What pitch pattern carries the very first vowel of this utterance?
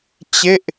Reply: falling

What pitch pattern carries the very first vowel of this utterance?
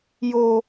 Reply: high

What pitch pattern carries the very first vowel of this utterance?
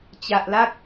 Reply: low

